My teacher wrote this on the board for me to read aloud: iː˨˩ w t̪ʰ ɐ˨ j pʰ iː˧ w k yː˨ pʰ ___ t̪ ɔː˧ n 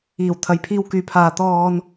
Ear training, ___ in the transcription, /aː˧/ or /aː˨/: aː˨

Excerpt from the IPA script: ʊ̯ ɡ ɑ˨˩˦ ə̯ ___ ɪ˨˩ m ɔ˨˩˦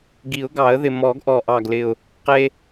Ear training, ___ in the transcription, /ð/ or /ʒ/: ð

